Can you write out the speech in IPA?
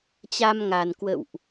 t͡ɕ a˧ m ŋ a˨˩ n k w ə̰˧˨ w ʔ

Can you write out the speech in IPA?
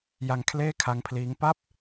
j a˧ ŋ kʰ l eː˥˩ kʰ a˦˥ ŋ pʰ l iː˦˥ ŋ p a˥˩ p̚

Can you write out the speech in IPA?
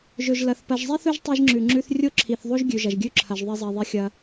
ʒ ɵ˨ ʒ l ɐ˨ θ p ɐ˨ ʒ zˤ i˦ θ ɵ˦ ʒ tˤ e˦ ʒ ŋ͡ǁ ʉ˨ ŋ͡ǁ ʉ˦ θ rʲ o˦ ǁʰ i˨ θ ðˤ o˦ ʒ ɡʲ ʉ˨ ʒ ɐ˨ ʒ ɡʲ ʉ˦ ǁʰ ɐ˨ ʒ ðˤ e˦ zˤ i˨ ðˤ i˦ xʲ ɐ˦

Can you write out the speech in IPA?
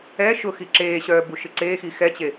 ɛ ʃ ʊ x i ǁ eː ɕ œː b u ʃ ɪ ǀ eː x i x ɛ t͡ɕ e

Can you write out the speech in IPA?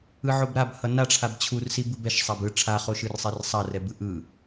ɯ ʕ o b ɾ a b h ʌ n a ʈ͡ʂʰ a b t͡ɕʰ u r s i b ɯ b ɛ ʃ sˤ a b ɯ ʈ͡ʂʰ a χ o ʃ ɯ r sˤ e r sˤ a r ɛ b ɯ ʔ ɯ

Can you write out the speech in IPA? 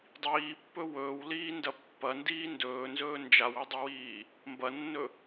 dˤ iː pː ɵ w ɵː w l iː n d ɐ pː ɐ n d iː n d ɵː n z ɵː n d͡ʒ a w ɵ dˤ ɵ w iː | m b ɐ nː ɵ

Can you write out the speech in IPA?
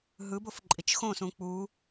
ɦ ɯ b o f ǃʼ i t͡ʃ x õ s ũ k͡p u

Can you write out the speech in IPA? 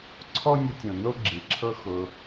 ǀʰ ɔ˦ nʲ ə˧ tʲ õ˨ n o˦ ɡ͡ǁ i˨ ǁʰ ɤ˦ x ʊ˧

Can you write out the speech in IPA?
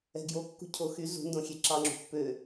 ɛ̤ ɡ j o kː ṳ cʰ o x y z ṳ n d õ xʲ e ǁ ɑ ŋ͡ǁ ṳ pː ø

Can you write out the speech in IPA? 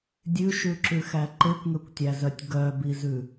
dʲ ʉ ʃ ʉ ǁ ʉ x æ ǃ e kʷ ŋ ø kʷ tʲ æ z œ tʲ ɡ œ b i z ʉ

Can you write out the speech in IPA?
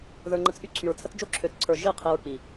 ð ə˞˨ ŋ͡ǃ ə˨ t͡s ʔ y˦ ǀʰ y˨ ɹ t͡sʰ ə˦ t͡s d͡ʒ o˦ ǁʰ ø˨ t͡s ǀʰ ə˞˨ ʒ i˦˨ qʰ i˨ ɹ k͡p i˨

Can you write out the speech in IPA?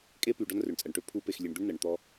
kʼ e˦ p y˨ ɖ ɔ˦ n r ø˨ ɳ t͡sʼ ɜ˨ ɳ ʈ ø˦ pʰ u˦ p e˨ x lʲ e˨ ɳ d̪ ø˦ ɳ n ɜ˨ ɳ t̪ ɔ˦

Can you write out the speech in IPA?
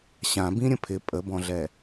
ɕ ã b ĩ ɾʲ ə̃ pʰ ɪ pʼ ə b ɔ̃ ɮ ɛ

